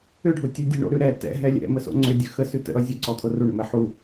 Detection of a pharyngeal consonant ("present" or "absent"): present